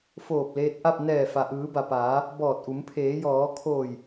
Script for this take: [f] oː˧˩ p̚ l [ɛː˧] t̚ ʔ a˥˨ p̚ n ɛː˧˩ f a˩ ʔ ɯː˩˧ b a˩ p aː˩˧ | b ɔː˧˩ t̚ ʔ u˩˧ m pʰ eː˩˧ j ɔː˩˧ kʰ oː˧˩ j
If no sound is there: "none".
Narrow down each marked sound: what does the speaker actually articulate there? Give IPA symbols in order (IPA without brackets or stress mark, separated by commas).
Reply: f, eː˧